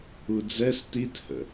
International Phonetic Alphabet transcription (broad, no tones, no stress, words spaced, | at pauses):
ud͡zɛs tithə̰